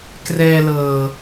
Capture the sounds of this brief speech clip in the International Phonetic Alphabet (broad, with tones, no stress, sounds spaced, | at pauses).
k r ɛː˧ l ɤː˨˩